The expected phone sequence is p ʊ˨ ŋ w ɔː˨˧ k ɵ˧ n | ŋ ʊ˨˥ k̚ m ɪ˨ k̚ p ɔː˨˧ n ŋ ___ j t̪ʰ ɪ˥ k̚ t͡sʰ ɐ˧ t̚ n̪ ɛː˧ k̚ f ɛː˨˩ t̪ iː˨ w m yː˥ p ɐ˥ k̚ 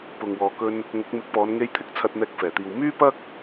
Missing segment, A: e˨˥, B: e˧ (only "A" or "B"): B